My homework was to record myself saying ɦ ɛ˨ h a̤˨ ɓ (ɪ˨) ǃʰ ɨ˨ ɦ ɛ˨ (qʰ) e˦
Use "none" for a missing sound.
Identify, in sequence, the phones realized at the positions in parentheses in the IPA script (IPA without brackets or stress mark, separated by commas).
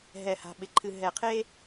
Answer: ɪ˨, qʰ